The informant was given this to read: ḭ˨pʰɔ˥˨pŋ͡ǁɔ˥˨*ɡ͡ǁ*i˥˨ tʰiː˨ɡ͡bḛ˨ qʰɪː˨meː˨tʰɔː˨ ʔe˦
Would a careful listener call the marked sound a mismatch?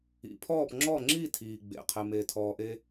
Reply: yes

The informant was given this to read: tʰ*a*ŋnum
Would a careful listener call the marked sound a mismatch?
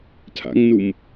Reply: yes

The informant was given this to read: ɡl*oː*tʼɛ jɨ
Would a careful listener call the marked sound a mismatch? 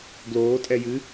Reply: no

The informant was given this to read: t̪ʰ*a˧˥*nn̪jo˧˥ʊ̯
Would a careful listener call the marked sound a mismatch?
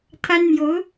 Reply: yes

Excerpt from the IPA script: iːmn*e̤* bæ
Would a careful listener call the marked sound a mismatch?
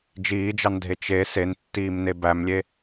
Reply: yes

